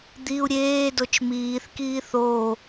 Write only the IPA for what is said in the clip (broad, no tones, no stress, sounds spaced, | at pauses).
d̪ i u̯ ɾʲ eː d o t͡ʃ m iː θ k iː θ o